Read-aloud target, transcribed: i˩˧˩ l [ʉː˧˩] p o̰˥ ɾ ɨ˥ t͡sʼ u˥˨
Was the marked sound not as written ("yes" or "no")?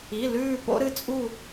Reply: no